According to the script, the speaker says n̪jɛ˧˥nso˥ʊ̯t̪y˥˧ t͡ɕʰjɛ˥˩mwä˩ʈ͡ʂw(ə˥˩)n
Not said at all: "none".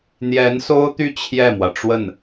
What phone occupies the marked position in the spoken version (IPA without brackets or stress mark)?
ə˥˩